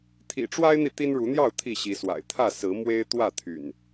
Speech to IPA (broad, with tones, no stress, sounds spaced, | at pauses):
t̪ʰ ḭ˨˩ ʈ͡ʂ w a˦ ɪ̯ n̪ i˨ t̪ i˦ n ɻ u˨˦ n̪ j ɑ˥˨ ʊ̯ t̪ʰ i˥˨ ɕ i˨˦ s w a̰˨˩ ɪ̯ t̪ʰ ä˥˨ s ɹ̩˨˦ m w e˦ ɪ̯ t̪ w ä˥˨ t̪ʰ y̰˨˩ n